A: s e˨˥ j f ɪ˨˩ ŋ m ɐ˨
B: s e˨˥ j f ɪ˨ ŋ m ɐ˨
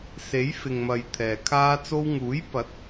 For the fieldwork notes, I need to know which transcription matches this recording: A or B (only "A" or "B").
B